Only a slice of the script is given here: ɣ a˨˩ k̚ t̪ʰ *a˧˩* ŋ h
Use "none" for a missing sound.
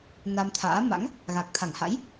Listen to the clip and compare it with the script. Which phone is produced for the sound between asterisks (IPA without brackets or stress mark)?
a˧˩